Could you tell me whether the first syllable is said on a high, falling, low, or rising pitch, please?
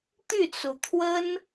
falling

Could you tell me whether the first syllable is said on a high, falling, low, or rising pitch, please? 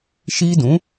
high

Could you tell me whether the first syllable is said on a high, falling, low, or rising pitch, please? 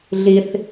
high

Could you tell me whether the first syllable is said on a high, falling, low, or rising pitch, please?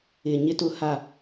high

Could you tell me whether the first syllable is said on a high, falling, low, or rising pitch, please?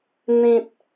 high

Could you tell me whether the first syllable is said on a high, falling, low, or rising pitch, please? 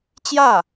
falling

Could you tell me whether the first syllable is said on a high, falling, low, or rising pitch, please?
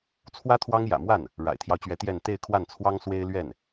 high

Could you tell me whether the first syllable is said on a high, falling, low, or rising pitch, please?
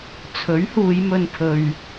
rising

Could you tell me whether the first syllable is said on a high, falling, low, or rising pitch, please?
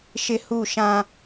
high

